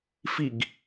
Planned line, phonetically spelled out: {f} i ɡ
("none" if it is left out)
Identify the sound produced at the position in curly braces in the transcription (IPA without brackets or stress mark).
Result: f